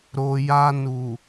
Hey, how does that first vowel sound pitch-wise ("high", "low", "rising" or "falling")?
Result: low